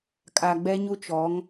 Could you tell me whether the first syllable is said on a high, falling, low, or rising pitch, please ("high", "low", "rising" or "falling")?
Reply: low